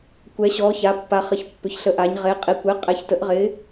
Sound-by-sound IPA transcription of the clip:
kʷɛ˩˧ɕɔː˩˧ ça˩˧pːa˩˧χə˩˧ç pːʏ˩˧çɬə˩˥ʔa˩˧ɲ ʁe˩˧qʼi˩˧kʷɪː˩˥ qʼɛ˩˥çtə˩˥ʔʁɪː˩˥

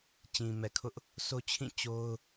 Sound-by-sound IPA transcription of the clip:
t͡ɕĩ˨mɛ˨kʰʊ˦ʔ | so˦t͡ɕʰĩ˦˨ t͡ɕo˦ʊ̯

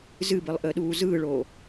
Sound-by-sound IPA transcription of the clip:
zɨbɨlˠʔəːɗuː zɯːɭoː

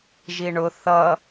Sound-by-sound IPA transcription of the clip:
ʒiɳʊ θʌ

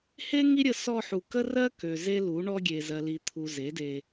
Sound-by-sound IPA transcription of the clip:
he˦ ŋi˦ɾʲə˧ sɔ˧ħu˨ kə˦rɜ˦kø˨ ze˦lu˨˦ɳɔ˦ ɡʲe˨ zɜ˨li˨t̪ʰu˨ ze˨˦de˧

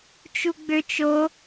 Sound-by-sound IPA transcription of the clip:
t͡ʃuɡ͡bøt͡ʃ o

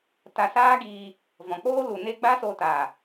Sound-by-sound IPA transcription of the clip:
ta˧saː˦ɡiː˧ | vɔ̃˨k͡poː˦ lu˨ne˦ ɡ͡ba˦so˧taː˨

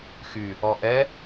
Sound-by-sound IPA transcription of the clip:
xy | ɔʔɛ

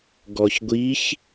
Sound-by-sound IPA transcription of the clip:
ɡɔçɡʷiç

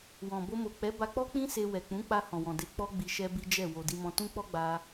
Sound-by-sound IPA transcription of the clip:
wɔ̃˨ bo˧mo˨ k͡pɛ˨˦ba˧k͡pɔ˦k͡pĩ˦ se˧ wɛ˨k͡pũ˨˦k͡pa˧ hɔ̃˨wɔ̃˨de˧ k͡pɔ˦ɡ͡bi˧ ʃɛ˦bi˦d͡ʒɛ˦˨ wo˨di˧mɔ̃˧ tũ˦k͡pɔ˦ɡ͡ba˧

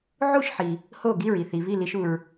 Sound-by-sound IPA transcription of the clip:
ʕu˥˩ʃħi˩ | ho˥˩ ɡi˥˩ɹi˥˩θi˩ βi˥˩li˧ʃu˩ɹ

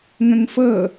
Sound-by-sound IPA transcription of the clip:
ŋə̃ŋfɤ

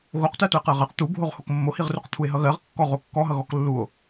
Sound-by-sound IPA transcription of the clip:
ɣoqtɜ toe̯qɜʁɜq t̪ubʱoʁ hokmːohiʁruq t̪ʰue̯ɦʌɣɜʁ kːɔʁ okːɔɦʌ ɣɔklːuo̯

